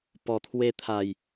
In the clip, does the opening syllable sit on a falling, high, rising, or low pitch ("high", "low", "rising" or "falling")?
low